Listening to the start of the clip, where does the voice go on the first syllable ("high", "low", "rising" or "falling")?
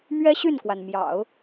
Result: high